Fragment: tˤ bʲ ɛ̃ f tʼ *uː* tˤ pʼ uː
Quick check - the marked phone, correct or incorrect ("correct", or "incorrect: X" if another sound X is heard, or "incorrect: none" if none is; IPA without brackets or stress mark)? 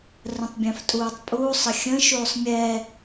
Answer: correct